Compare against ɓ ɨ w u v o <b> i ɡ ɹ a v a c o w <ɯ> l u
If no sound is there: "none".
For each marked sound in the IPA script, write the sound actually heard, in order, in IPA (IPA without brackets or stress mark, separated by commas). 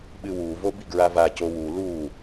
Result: b, u